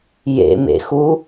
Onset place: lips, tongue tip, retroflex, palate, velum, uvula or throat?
palate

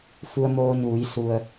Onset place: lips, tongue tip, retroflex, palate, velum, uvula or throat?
lips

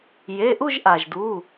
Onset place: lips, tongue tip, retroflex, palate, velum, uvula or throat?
palate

